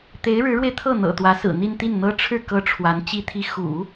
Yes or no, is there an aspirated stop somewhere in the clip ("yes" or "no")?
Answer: yes